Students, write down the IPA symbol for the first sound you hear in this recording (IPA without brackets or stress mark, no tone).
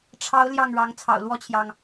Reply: ʈ͡ʂʰ